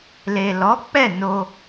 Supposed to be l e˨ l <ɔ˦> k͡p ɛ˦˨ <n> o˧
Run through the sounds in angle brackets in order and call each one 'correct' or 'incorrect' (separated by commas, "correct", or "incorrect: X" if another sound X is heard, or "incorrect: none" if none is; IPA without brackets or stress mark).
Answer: incorrect: ɔ˨˦, correct